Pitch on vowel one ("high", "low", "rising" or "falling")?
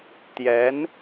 rising